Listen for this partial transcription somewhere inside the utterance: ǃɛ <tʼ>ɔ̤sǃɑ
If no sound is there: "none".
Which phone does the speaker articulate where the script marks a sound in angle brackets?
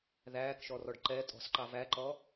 tʼ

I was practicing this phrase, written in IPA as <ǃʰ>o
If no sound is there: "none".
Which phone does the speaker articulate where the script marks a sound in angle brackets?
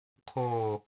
kʰ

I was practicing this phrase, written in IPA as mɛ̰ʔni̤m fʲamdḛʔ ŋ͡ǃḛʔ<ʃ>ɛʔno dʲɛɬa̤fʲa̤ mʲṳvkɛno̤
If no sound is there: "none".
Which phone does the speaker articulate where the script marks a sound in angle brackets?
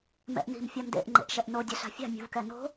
ʃ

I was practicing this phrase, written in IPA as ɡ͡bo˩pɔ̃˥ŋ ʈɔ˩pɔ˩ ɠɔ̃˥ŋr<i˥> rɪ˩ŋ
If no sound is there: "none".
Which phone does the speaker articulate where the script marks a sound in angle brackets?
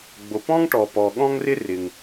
ɪ˥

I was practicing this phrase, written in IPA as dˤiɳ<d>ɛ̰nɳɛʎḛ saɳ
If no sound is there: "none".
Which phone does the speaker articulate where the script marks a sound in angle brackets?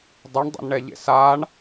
dˤ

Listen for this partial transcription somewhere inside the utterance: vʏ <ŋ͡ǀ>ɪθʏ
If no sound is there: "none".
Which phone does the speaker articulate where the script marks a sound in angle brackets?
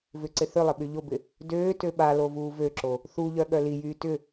ǀ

